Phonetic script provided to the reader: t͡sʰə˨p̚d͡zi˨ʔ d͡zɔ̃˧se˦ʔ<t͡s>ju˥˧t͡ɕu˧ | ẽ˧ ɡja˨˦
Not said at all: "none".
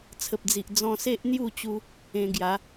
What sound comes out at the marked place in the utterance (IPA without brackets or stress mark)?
n̪